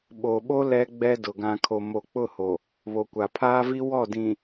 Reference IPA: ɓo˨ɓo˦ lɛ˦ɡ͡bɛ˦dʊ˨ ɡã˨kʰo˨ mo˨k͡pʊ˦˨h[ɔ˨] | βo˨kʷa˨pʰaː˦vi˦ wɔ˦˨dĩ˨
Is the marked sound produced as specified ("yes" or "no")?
no